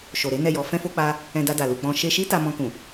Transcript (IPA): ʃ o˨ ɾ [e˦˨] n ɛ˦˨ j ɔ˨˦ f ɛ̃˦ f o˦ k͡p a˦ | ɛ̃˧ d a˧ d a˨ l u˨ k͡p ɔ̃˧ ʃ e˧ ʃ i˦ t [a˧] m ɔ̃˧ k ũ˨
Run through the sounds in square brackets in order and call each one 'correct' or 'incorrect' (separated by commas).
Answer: incorrect, correct